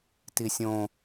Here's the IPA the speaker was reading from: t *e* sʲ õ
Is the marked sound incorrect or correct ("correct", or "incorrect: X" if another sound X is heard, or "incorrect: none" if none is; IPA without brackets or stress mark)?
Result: incorrect: i